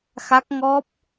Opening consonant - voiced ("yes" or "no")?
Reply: no